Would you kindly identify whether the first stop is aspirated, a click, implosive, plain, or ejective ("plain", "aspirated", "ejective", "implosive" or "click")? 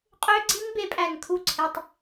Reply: ejective